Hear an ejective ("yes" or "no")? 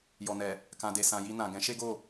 no